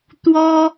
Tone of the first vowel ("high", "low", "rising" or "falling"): high